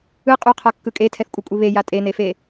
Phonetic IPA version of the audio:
ɯ qʼ u qʰ a kː ɯ kʼ e tʰ ɛ θ kʷʼ e kʷʼ i β e j a tʼ e n e f e

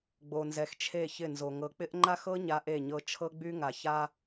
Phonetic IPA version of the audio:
ɡ͡b o˨ n z ɛ˨ x t͡ʃʰ e˦˨ ç ɪ˦˨ n z o˨ ŋ ɤ˨ k͡p ɪ˦ ʔ ŋ͡ǃ a˦ x ɤ˦ ɲ a˦ ʔ e˦˨ ɲ ɤ˦ t͡ʃʰ ɤ˦ ɡ͡b y˦ ŋ a˨ ç a˦

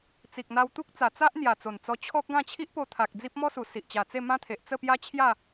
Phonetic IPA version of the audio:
t͡s i˨ k̚ n̪ a˧ w t̪ u˦ k̚ t͡s a˨˩ t͡s a˦ ʔ n̪ j a˨˩ t͡s o˨˩ n t͡s ɔ˧ t͡ɕʰ ɔ˦ k̚ ɡ ã˥˧ t͡ɕʰ i˦ ʔ p o˧ t̪ʰ a˨ k̚ d͡z i˦ p̚ m ɔ˦ s u˨˩ s i˨ ʔ t͡ɕ a˨˩ t͡s e˥˧ m ã˦ t̪ʰ e˨ ʔ t͡s ə˥˧ p j a˦ t͡ɕʰ j a˥˧

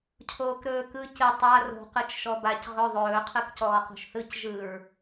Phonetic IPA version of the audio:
cʰ oː k ɾ ɵː k ɯ c ɨ tˤ a r o̤ q ɯ t͡ʃ ʃ ɔ b a c ʁ ɵ ðˤ ɵː qʰ ɯ k c ɔː q o̤ ʃ θ ɯ c ʒ ɯ ɹ

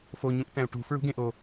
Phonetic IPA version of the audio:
f o ɲ ũ ʔ t æ̃ u̯ ʈ ṳ f ɹ ṳ ɡ ẽ ʔ o

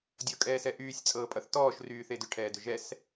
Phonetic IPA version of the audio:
dʲ ɤ kʼ ɛː s ɛ ʔ yː sʲ t͡sʼ ɤː pʼ ʌ θ t ɔː ʃ r yː θ e d ʏ ʈʰ ɛː d ʏ ʒ ɛ s

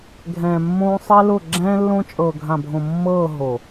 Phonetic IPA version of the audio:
ɡʱ ɛ̃ː˨ mː õː˦ sˤ ɛ˦ l ʊ˦˨ ɡ͡ǁ ɛ̃ː˦ lː õ˦ t͡ʃʼ ɤː˨ ɡʱ ã˨ bʱ õ˨ mː ɤː˦˨ ɦ o˨

